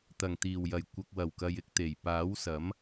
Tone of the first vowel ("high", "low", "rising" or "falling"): low